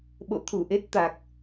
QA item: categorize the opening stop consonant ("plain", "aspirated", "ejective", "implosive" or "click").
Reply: implosive